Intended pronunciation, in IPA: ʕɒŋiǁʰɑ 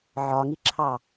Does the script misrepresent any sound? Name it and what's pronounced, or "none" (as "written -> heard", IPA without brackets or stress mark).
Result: none